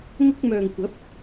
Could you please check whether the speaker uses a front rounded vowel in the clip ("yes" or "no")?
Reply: yes